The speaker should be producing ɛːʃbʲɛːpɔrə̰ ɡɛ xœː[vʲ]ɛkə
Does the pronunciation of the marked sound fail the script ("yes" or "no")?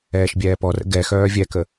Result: no